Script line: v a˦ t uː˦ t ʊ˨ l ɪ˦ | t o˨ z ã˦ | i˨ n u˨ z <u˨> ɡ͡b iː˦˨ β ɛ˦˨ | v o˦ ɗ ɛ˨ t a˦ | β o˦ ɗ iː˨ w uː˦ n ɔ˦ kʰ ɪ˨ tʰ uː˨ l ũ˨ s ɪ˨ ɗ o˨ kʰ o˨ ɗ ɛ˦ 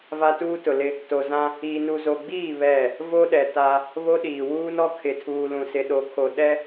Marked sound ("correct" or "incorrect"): incorrect